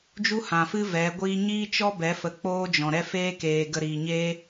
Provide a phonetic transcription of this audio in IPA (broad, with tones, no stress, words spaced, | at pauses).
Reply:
d͡ʒu˦hã˨fɨ˦ vɛ˨˦ɡʷiː˦ ɲiː˦t͡ʃɔ˦bɛ˨˦ fə˧k͡poː˦d͡ʒɔ̃˨ɾɛ˦ feː˦ keː˧ ɡə˧ɾiː˨ɲeː˦